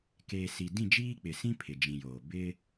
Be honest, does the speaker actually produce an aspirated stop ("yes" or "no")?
yes